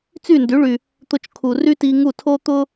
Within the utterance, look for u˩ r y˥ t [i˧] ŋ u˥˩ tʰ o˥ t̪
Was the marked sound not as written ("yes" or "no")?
no